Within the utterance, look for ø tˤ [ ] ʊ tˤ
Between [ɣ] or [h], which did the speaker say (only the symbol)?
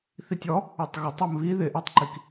ɣ